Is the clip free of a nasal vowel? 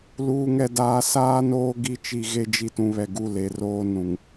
no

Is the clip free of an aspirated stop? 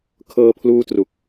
no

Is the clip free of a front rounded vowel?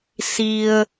yes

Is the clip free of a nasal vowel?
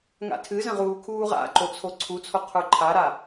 no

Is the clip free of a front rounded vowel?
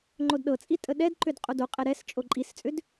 no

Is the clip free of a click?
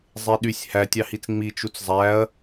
yes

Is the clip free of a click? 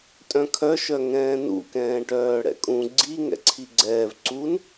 no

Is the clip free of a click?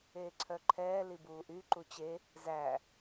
no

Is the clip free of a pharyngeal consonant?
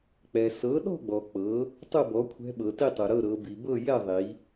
yes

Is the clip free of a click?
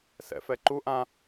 no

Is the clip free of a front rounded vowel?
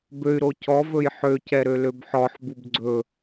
no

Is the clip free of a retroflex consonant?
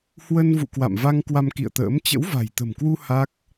yes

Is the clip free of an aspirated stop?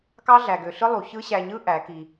yes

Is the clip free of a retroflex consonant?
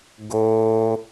yes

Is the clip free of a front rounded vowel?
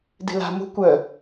no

